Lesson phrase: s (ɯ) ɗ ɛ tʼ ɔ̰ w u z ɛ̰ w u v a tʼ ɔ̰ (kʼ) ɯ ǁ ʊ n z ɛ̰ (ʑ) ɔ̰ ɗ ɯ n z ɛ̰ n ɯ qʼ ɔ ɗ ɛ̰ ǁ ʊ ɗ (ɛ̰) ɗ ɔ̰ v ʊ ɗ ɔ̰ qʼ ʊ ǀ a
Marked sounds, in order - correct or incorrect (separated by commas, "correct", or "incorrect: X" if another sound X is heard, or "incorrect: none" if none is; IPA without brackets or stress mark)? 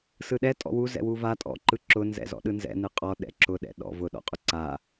correct, incorrect: ǃ, incorrect: z, correct